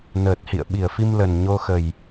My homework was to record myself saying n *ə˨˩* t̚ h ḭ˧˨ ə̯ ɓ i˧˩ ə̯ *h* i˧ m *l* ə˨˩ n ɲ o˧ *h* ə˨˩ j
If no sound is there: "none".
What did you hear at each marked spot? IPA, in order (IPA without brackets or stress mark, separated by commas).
əː˨˩, f, l, x